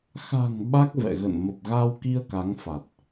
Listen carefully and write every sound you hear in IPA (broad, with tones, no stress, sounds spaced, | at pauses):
x a̤˨˩ ŋ ɓ a˦˥ k̚ v ɛ̰˧˨ ɣ ə̰˧˨ n m ə˨˩ p̚ ɣ a˧ w k i˧ ə̯ k a˨˦ ŋ f a˨˩ t̚